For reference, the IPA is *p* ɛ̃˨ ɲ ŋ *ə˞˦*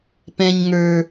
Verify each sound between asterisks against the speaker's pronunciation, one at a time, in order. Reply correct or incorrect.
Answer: correct, incorrect: ə˞˨

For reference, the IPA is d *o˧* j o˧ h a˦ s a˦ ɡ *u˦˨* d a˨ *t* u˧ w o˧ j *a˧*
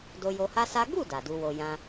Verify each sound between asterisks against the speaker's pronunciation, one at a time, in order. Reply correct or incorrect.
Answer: correct, correct, incorrect: d, incorrect: ã˧

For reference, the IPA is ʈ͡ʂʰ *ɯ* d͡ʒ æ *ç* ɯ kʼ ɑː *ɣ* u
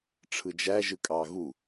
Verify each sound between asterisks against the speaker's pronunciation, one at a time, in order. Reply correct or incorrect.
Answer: correct, incorrect: ʒ, correct

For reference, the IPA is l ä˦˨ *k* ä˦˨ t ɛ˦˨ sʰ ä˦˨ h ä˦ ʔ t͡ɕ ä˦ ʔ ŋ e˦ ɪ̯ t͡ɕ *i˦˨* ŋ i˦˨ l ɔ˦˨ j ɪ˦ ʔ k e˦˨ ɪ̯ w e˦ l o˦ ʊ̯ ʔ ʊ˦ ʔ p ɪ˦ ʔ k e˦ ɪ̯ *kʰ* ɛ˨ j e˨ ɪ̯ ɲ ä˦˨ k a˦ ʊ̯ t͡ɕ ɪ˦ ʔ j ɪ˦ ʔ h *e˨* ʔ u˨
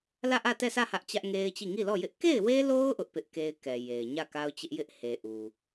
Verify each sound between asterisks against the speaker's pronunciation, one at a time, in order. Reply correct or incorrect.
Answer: incorrect: ʔ, correct, incorrect: k, correct

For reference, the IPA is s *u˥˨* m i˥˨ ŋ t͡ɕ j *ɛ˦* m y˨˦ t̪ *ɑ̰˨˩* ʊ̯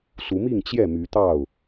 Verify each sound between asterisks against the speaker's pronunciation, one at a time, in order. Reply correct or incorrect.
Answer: incorrect: u˨˦, incorrect: ɛ˥˨, incorrect: ɑ˥˨

